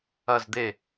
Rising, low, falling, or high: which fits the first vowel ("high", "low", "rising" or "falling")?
falling